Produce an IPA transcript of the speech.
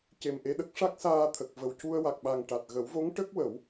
c e˨˩ m ʔ e˧ ɗ ə˦˥ k̚ ʂ a˦˥ k̚ s aː˧ t̪ʰ ə˨˩ k̚ v ə˨˩ w c u˧ ə̯ w a˨˩ k̚ ɓ a˨˩ ŋ ʈ a˨˩ t̚ ɣ ə˨˩˦ w v o˧˥ ŋ ʈ ə˦˥ k̚ w ə˨˩˦ w

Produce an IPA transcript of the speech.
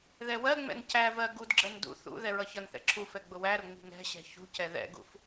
ð ɛ w ɜ ŋ͡m ɛ̰ n c æ v ɜ ɡ u d ɡ͡ǁ ɜ n d ṵ θ ṵ ð ɛ ɹ ʌ ç ʌ n θ ɛ̰ ǁʰ u f ɛ ɡ͡b ʊ w æ ɾ ʊ ŋ͡m i̤ ŋ ɛ̤ ɕ ɛ̤ ç ṳ c ɛ ð ɛ̰ ɡ ṵ f

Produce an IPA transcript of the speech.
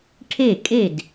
ʈʰ e˥˨ kʼ e˥˨ d

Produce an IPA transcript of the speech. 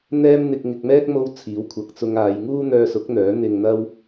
n̪ ɛː˥ m n̪ ɪ˧ k̚ ŋ ɪ˧ k̚ m ɛː˥ k̚ m o˥ w t͡sʰ iː˨˥ w kʷʰ ɐ˨ k̚ t͡s ʊ˧ ŋ aː˨˧ j ŋ uː˥ n̪ œː˧ s ʊ˨˥ k̚ n̪ œː˨˥ n̪ ɪ˧ ŋ n̪ ɐ˥ w

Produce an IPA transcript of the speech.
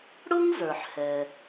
ɽ ʊ˥ ŋ z ə˞˩ ħ h ɛ˩

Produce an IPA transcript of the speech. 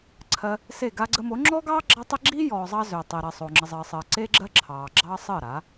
ǀʰ ɜ˧ | s e˦˨ ɡ a˧ ɡ͡ǀ ə˧ m o˨˦ ŋ͡ǁ ɔ˦ ɡ ɑː˦ ɡ͡ǁ ɑ˦ tˤ ə˦ ɡ͡ǁ i˦ j ɔː˨ zˤ ɑ˧ z ø˨ tˤ i˨ ɾ ɜ˨ sˤ o˨ ŋ͡ǁ ə˨ zˤ əː˨ sˤ əː˨ ǀ e˦ ɡ͡ǁ ɜ˦ ǁʰ ɑː˨ ɡ͡ǁ ɑ˦ sˤ əː˦˨ ɾ a˨˦

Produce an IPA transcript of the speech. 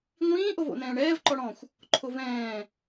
ŋʷ ĩː ʔ o v o̰ n ɛ̃ː ɳ ɛː v ǃ ɔ ɽ ɔ̃ xʷ | ǃʰ o v ɛ̃ː

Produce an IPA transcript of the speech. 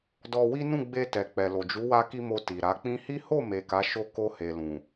d ɔ˧ w i˦ n ũ˦˨ ɡ͡b e˧ t ɛ˨ k͡p ɛ˨ l o˨ d͡ʒ u˨˦ w a˧ k i˧ m o˧ t i˨ ɾ a˨˦ k͡p ĩ˧ h i˦ h o˦˨ m e˨ k a˨˦ ʃ o˦˨ k o˧ h e˨ l ũ˨

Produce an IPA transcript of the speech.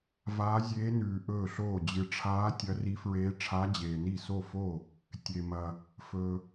v aː˧˥ zʲ eː˧˥ n ʉː˨ ʔ ɵː˥˩ ɬ oː˥˩ d͡ʑ ɨ˨ ʈ͡ʂʰ aː˧˥ tʲ ɐ˧˥ r i˧˥ f ɹ eː˧˥ ʈ͡ʂʰ a˧˥ d͡ʑ eː˨ n i˥˩ s o˥˩ f o˥˩ | tʲ e˨ m ɐ˨ | f ɵː˨

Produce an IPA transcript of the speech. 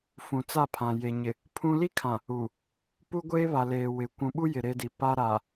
f ũ˨ t͡s a˦˨ pʰ ã˨ j e˨ ɲ ɪ˨ | pʰ ũ˦ l i˦ kʰ ã˨ | u˨ | p u˦ ɡʷ eː˦ β a˨ l eː˨ w ɪ˨ kʷ ũ˨ ɓ u˦ j ɪ˨ ɾ e˦ d i˨ p a˦ ɾ a˨

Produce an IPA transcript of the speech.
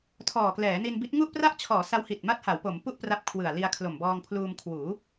tʰ ɔː˨˩ k l ɛː˩˦ n i˧ n b i˦˥ t̚ ŋ u˥˩ ʔ p r a˥˩ ʔ t͡ɕʰ ɔː˩˦ s a˦˥ w h i˨˩ t̚ m a˦˥ t̚ h a˩˦ w p o˩˦ m p u˥˩ ʔ p r a˦˥ p̚ kʰ w ɯ˨˩ a̯ l i˧ a̯ kʰ l o˨˩ m b ɔː˧ ŋ pʰ l uː˧ m kʰ w uː˩˦

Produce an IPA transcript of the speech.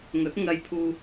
ŋ ɵ˨˥ t̚ ŋ ɐ˧ j pʰ uː˧

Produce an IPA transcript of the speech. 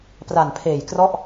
p r a˨˩ n pʰ eː˨˩ j k r ɔ˥˩ ʔ

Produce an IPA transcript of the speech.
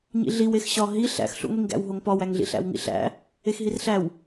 ɲ ḭ ɮ i w e x ɕ ɒ ɦ i ɬ æ̰ x ɬ ṵ ŋʷ i ŋ ɡ æ̰ w ɦ o ŋ p ɒ w æ ŋ ɮ ḭ ɬ æ̰ w ŋ ḭ ɬ æ̰ | e x ɦ i r ɬ æ w

